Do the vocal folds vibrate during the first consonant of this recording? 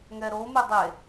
yes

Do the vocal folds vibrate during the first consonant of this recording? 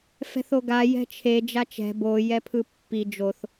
no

